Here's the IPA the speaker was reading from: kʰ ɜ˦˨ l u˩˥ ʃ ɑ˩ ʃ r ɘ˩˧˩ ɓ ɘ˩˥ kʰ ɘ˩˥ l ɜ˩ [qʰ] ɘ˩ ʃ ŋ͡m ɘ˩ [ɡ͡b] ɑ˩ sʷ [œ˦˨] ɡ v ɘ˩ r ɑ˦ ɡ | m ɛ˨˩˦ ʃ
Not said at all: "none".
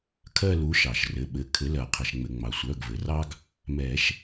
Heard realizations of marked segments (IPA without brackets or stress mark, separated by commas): qʰ, ŋ͡m, œ˩˧˩